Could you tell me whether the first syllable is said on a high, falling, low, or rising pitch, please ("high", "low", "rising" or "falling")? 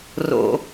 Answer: low